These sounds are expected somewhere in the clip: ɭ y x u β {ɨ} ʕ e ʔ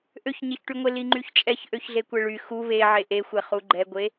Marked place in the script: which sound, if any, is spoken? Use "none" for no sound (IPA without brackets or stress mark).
e